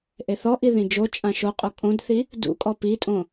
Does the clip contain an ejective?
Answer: yes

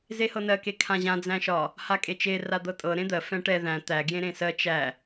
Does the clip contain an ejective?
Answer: yes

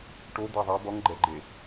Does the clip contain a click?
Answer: yes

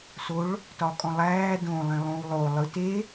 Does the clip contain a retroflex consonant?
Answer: yes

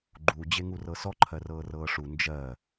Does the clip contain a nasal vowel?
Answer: no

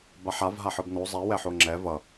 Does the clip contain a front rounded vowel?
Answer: no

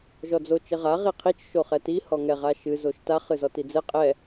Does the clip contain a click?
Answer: no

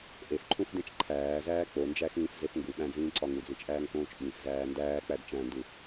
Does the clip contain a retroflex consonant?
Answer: no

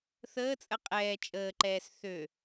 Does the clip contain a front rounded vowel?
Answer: yes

